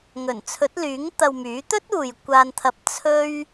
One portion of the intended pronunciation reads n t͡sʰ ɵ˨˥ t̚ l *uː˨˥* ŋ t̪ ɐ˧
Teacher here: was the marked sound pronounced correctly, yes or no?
no